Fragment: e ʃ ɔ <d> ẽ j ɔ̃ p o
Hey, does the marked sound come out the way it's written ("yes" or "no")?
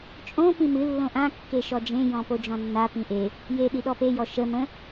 no